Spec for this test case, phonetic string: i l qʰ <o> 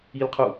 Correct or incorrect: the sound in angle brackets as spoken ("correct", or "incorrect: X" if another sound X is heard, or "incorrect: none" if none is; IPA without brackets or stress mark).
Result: incorrect: u